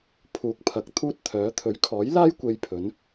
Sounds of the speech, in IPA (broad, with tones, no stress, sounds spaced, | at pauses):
pʰ uː˨ k̚ pʰ ɐ˨˥ k̚ t̪ʰ uː˥ t̚ t̪ʰ œː˨˥ t̪ʰ ɵ˨˥ ɥ kʰ ɔː˨˥ j l aː˥ j kʷ e˧ j pʰ ɵ˨˥ n